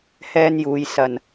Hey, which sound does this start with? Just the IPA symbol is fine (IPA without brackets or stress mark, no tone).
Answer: h